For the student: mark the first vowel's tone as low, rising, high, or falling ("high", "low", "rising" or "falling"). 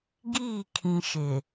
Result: falling